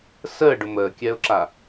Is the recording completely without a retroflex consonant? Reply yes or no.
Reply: no